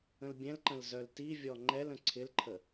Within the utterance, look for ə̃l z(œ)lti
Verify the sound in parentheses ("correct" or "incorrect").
correct